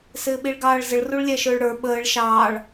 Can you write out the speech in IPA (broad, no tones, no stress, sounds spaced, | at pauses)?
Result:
s ɪː ɓ i ɭ ɡ ɑː ɭ z ə ɭ r u ɭ lʲ æ ʃ ʊː ɭ ɽ ə˞ ɓ əː ɭ ʃ ɑː ɭ